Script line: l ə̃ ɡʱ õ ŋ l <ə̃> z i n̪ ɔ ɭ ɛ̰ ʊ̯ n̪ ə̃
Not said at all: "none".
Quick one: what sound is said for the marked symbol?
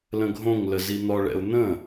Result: ə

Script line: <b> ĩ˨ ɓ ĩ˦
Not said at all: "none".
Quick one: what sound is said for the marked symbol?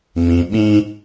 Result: m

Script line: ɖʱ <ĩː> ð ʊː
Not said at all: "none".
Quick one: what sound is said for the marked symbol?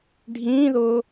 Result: ĩː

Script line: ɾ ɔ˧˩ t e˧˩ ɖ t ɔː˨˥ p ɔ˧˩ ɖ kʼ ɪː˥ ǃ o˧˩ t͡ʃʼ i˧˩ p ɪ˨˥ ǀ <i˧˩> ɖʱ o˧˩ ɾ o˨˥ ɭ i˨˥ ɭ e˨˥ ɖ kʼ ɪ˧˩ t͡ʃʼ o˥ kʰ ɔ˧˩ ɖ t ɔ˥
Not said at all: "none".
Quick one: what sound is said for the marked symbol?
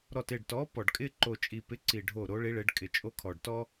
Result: i˧˩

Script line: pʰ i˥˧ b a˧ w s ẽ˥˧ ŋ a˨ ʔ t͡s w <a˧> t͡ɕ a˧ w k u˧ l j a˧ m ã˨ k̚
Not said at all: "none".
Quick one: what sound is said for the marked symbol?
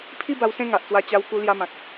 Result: a˧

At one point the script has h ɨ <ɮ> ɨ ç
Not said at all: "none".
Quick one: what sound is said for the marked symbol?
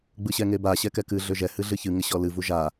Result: ɮ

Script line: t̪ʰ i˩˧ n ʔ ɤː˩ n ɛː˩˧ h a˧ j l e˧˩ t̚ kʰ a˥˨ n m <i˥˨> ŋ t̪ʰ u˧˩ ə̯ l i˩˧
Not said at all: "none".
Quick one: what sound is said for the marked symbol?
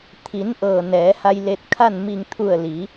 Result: i˧˩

